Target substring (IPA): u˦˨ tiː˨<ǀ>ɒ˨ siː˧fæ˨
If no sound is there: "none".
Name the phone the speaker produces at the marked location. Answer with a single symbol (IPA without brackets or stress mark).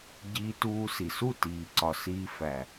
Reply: ǀ